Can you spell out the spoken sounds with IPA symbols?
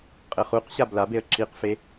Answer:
qʼ ɘ χ u q ɕ a b l a b e ə̯ ǁ i q f e

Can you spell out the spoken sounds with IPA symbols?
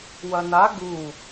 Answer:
w ɐ n a ɡ u

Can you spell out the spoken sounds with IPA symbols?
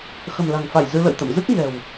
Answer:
x ə̤˨˩ m l a̤˨˩ ŋ f a˧˩ j z ɨ˧ l ə̰˧˨ j t̪ ə̰˧˨ m z ɨ˦˥ k̚ ɲ ɛ̤˨˩ w

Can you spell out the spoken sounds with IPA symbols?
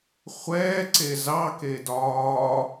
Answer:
χʷ ɛː ǀ e z ɑ k e d ɒː

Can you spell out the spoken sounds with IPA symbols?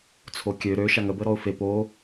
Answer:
t͡sʰ o kʲ ø ɾ ø ʃ a ŋ ə b ə ɾ ɔ ʊ̯ f e p o

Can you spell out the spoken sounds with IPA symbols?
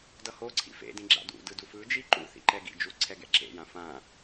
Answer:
d ʌ h o ǀʰ ḭ f ḛ d ĩ ɡ͡ǁ a̰ d ṵ d ɯ d u f ɯ d͡ʒ i ǃ ṵ θ ḭ ǃ ɛ ɡ ḭ d͡ʒ u ǀʰ ɛ ɡ ɛ̰ ǁ ḛ j ã f ã

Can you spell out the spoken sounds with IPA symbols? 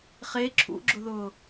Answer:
χ e ǁʰ ṵ ɡ͡ǁ ʊ ð ʊː

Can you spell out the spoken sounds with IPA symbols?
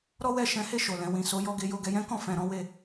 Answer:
ɾ ɔ˦ w ɛ˦˨ ʃ ɛ̃˨˦ h e˦˨ ʃ o˨ l ɛ̃˨ w ĩ˨ s o˨˦ j ɔ˧ ɡ e˧ j o˧ ɡ ɛ˧ j ɛ̃˦ k ɔ̃˦˨ f ɛ̃˨ ɾ ɔ̃˨˦ w e˧

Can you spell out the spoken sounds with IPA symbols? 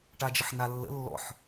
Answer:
ʈ a d͡ʒ ə ħ n a lː ə̰ lː ɔ̰ ħ

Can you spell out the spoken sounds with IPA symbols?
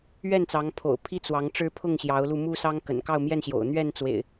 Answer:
ɥ ɛ˥˨ n t͡s ɑ˨˦ ŋ pʰ o̰˨˩ ʊ̯ pʰ i˦ t͡s w ɑ˨˦ ŋ ʈ͡ʂ ɻ̩˦ pʰ ʊ˥˨ ŋ ɕ j ɑ˨˦ ʊ̯ l u˧ m u˦ s ɑ˦ ŋ k ə̰˨˩ n k ɑ˥˨ ʊ̯ m j ɛ˥˨ n ɕ j o̰˨˩ ʊ̯ n̪ ɥ ɛ˥˨ n t͡s w ḛ˨˩ ɪ̯

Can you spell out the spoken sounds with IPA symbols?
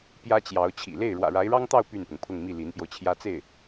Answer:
p j ä˥ t͡ɕ j ɑ˧˥ ʊ̯ t͡ɕʰ ḭ˨˩ l e˥˩ ɪ̯ ɻ w ä̰˨˩ ɻ a˧˥ ɪ̯ ɻ ɑ˥ ŋ t̪ ɑ˥˧ ʊ̯ p y˥˩ n p ʊ˩ ŋ pʰ ʊ˥˧ ŋ m i˥˩ l i˧˥ n p j o˧ ʊ̯ t͡ɕʰ j ä˥ t͡s e˥˩ ɪ̯

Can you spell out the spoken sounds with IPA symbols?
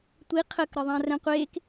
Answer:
tʷ i qʰ ə k ɾ ə ðˤ ã r ɛ̃ qʷ eː k

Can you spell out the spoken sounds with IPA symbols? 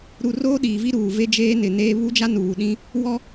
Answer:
ɾ u˨ r oː˦ ɗ iː˨ v i˦ ɾ uː˨ v e˦ d͡ʒ eː˦ n ɪ˨ n eː˦ β u˦ d͡ʒ a˦ n uː˨ ɗ ĩ˦ | w ɔ˦

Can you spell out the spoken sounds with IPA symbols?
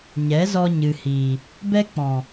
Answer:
ɲ ɛ˨˦ z ɔ˧ ɲ ɨ˨ h iː˨ | b ɛ˦ k͡p ɔ̃˨

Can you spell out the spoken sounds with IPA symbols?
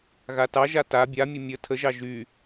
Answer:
ɣ a t ɑ ʒ a t a bʲ a mʲ ə mʲ ə tʰ ə ʒ ɑ ʒ y

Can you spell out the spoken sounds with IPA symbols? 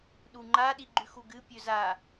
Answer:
ɗ u ŋ͡ǃ a ɗ i ɡ͡ǃ ʉ x u ɡ ɨ pʲ ɵ z a

